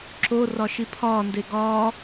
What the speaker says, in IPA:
ǁ o r ɒ ʃ i pʰ ɒː n d e ɡ ɒː

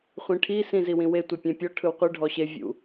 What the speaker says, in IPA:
χʷ ĩ ʈʰ i s ĩ z i w ĩ w e tʷ ɛ pʲ ɛ̃ pʲ ɔ ʈʰ ɯ w qʷ ɯ ɖʱ ɔ ɕ e vʲ ṵ

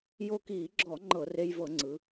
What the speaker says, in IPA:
j o˧ k iː˧˩˧ ɡ͡ǁ ɔ˧˩˧ ŋ͡ǃ ɤ˧˩˧ r e˧ j v ɤ˧˩˧ ŋ͡ǀ ɯ˩˧

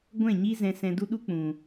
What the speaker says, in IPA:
ɡʷ ɛ̃˦˨ ɲ i˦ z ɛ̃˧ s ɛ̃˧ d u˦ ɗ u˦ k͡p ũ˨

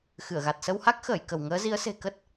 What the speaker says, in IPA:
x ɨ˧˩ ə̯ ɣ a˨˩ t̚ s ə˧ w h a˦˥ k̚ x əː˧˩ j k ə˧˩ w ŋ əː˨˦ z i˨˦ ə̯ s e̤˨˩ k ə˦˥ t̚

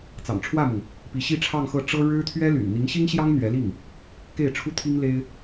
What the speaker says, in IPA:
t͡s ɑ̰˨˩ ŋ ʈ͡ʂʰ w ä˥˩ m ʊ˩ ŋ | p i˧˥ ɕ i˥˧ ʈ͡ʂʰ ɑ˥˧ ŋ x ɤ˥˩ ʈ͡ʂ ɤ˥ ɻ ɻ̩˥ t̪ʰ ɥ ɛ˥ l y̰˨˩ n n̪ i˧˥ ŋ ɕ i˥ ŋ ɕ j ɑ˥ ŋ n̪ ɥ ɛ˧˥ l i˥˩ ŋ | k e˥˩ ɪ̯ ʈ͡ʂʰ u˥ t̪ʰ i˥ ŋ l e˥ ɪ̯

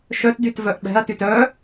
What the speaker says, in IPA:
ʃ œ t d y t v œ ʔ ɓ ɛ̤ ɐ̯ t y t œ

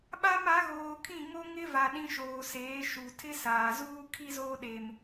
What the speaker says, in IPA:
ɓ a˦ m a˨˦ ɣ oː˨ kʰ ĩ˦˨ ŋ o˦ ŋ ɪ˦ v a˨ ɗ ĩ˦ ʃ oː˨ s eː˨˦ ʃ u˨ tʰ ɪ˦ s aː˨ z uː˦ kʰ i˦ z oː˦ ɗ e˨ m

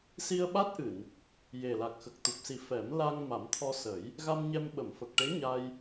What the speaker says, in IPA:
s i˧ ə̯ ɓ a˦˥ t̚ ʔ ɨ˨˩˨ n | j e˨˩ l a˨˩ k̚ x ə˨˩ k̚ t̪ u˨˩ p̚ s i˨˩˦ f ɛ˨˩˦ m l a˧ ŋ m a˨˩˦ m t̪ʰ ɔ˧ s ə˨˩˦ j | ɣ a˧ m ɲ ɛ˧ m ɓ ə˨˩˨ m f ə˨˩ k̚ ʈ e˧˥ ɲ a˧ j

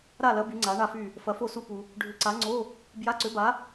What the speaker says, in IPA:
ɾ a˥˨ l ɐ˨˥ b y˨˥ ŋ͡ǀ a˨˥ ɳ a˥˨ f y˥˨ | f ɐ˨˥ f o˥˨ s u˥˨ p u˧ | ɖʱ ʏ˨˥ ǀ a˨˥ ŋ͡ǀ o˧˥˧ | b j a˧˥˧ ǀ ʏ˨˥ b a˨˥

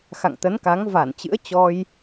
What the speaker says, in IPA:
x a̰˧˨ ŋ t̪ ə˨˦ n k a˨˦ ŋ v a˧˩ n t͡ɕ ɨ̰˧˥ ə̯ t͡ɕ ɔ˧ j

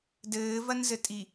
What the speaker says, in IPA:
d ɘː v ɐ n z ɘ tʼ i

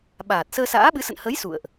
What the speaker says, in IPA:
ɓ aː˨˩ t̚ s əː˧ s a̰ː˧˥ ɓ ɨ˨˦ s ə̰˧˨ n h ə˨˦ j s ṵ˧˨ ə̯ ʔ

